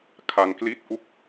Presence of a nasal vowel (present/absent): absent